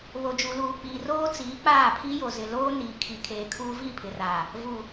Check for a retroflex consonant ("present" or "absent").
absent